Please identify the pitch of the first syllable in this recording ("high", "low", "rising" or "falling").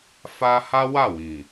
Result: high